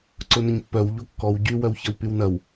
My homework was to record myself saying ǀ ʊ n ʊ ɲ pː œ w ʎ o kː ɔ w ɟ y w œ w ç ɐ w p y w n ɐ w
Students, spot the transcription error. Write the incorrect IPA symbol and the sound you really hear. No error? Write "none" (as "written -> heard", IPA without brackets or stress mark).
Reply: none